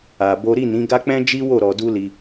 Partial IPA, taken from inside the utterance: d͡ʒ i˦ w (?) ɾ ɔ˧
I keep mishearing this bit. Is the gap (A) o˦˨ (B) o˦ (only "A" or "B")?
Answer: A